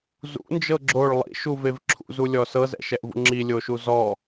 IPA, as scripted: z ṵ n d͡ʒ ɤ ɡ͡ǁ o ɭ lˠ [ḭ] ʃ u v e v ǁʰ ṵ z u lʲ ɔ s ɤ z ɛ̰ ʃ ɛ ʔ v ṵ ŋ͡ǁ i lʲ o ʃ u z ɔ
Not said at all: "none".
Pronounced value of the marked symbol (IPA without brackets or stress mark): ḭ